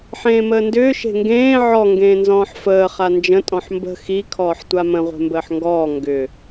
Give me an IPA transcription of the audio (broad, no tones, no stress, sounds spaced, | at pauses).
ħ ẽː m əː n d ʏː ʃ e̤ ŋ ɡ ẽː ʕ ɔ ŋ ɡ ẽː n z ɔ̃ː ħ f əː χ a n d͡ʒ ə̃ tʼ ɔ̃ ħ m b ə̤ x i kʰ ɔː ħ tʷ a m ə̃ ʁʷ e̤ m b əː ħ ŋ ɡ ɔː ŋ ɡ ʏ